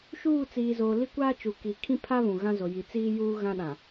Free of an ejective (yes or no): yes